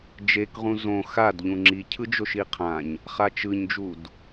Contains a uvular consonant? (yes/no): yes